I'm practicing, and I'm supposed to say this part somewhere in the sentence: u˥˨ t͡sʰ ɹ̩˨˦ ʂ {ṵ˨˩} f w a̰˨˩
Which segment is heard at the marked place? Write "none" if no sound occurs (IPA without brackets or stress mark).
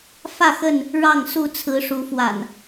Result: u˨˦